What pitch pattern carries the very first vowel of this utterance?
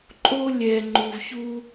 high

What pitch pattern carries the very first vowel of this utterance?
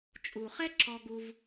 low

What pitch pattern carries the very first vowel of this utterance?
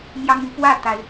high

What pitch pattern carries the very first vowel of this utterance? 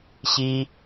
high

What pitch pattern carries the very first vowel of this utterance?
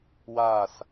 falling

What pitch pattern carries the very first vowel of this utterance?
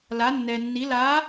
rising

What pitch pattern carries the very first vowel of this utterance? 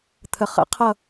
low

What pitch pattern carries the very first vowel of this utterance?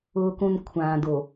low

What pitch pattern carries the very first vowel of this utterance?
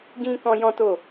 high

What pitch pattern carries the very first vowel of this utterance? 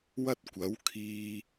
high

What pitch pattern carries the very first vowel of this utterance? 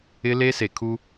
high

